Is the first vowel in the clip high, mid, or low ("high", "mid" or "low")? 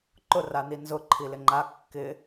high